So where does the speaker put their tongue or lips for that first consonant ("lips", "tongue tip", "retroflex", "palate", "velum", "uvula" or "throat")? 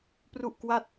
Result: lips